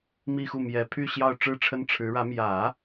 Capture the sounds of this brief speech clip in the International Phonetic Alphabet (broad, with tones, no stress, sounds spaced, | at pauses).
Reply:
m i˥˧ x u˥˩ m j ɛ˨˩ pʰ y˥˧ ɕ j ɑ˥˧ ʊ̯ ʈ͡ʂ ɻ̩˥˩ ʈ͡ʂʰ ə˥ n ʈ͡ʂʰ ɻ̩˧˥ ɻ ä˧˥ m j ä˨˩˦